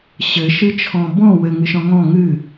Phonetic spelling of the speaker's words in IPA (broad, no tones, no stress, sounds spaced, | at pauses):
ɕ ɘ ʃ ɨ t͡ʃʰ ɔ̃ b ɔ̃ w ɘ ŋ ɨ ʃ ɔ̃ ŋ ɔ̃ ŋ ɨ